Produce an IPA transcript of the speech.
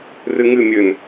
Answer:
r ɨ ŋ ɨ mʲ ɘ n

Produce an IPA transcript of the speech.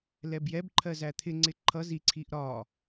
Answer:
l ɛ b j ɛ b ǃʰ ɜ z æ t̪ʰ ɪ ŋ͡ǀ ɪ ǃʰ ʌ z i ǀʰ i ʔ ɾ ɒ

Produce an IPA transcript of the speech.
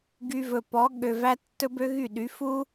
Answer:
ɡ y˧ v ɵ˨ p ɔ˨˦ ɠ ø˨ v æ˧ tː ɵ˦ b ø˦ ɣ y˦˨ ɗ y˨˦ f u˦

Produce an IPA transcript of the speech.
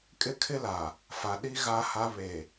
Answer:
kʼ ɪ˦ kʰ ɪ˦ l a˨ | f a˨ ɗ i˦ ɣ a˦ h a˦ β e˨

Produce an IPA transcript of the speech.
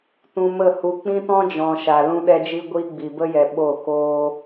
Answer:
t ũ˧ m ə˦˨ h u˧ k͡p ĩ˦ t ɔ̃˦ d͡ʒ ɔ̃˨ ʃ a˨ l ũ˦ ɗ ɛ˦ d͡ʒ i˦ ɡʷ iː˦ ɡ͡b i˨ b ə˦ j ɛ˨ ɓ o˦˨ k oː˦

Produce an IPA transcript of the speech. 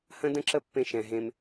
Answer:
h ə̃˦ d ə̃˦ ǁ ə˦ pː ẽ˦ ʃ ɛ̃˧ ɦ ẽ˦ m

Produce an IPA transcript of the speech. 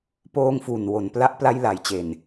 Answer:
p oː˧ ŋ f u˨˩ n w o˨˩ n p l a˦˥ ʔ p l a˧ j l a˨˩ j t͡ɕ e˨˩ n

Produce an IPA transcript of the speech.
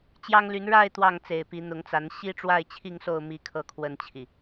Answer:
t͡ɕ j ɑ˦ ŋ l y˨˦ n ɻ a˥˨ ɪ̯ t̪ w ɑ˥˨ ŋ t͡s e˨˩ ɪ̯ p i˨˦ n̪ ʊ˨˦ ŋ t͡s a˨˦ n ɕ i˦ ʈ͡ʂ w a˥˨ ɪ̯ t͡ɕʰ i˥˨ ŋ s o˥˨ ʊ̯ m i˦ kʰ ɤ˥˨ kʰ w ə˥˨ n t͡ɕʰ i˨˩

